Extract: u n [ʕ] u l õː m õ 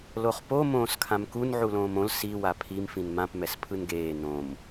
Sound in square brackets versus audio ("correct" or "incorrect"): correct